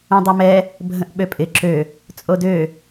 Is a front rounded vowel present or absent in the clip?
present